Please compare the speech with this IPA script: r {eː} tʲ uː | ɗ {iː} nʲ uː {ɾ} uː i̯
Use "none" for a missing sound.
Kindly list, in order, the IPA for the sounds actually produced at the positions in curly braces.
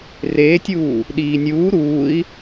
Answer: eː, iː, ɾ

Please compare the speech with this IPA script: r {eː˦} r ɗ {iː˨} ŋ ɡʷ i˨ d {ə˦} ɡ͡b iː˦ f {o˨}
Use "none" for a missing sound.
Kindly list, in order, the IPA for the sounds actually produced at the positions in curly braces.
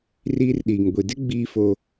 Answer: iː˦, iː˨, ɪ˦, o˦

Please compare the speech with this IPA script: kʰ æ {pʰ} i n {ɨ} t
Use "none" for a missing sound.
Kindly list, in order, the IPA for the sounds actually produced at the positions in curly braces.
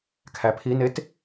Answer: pʰ, e

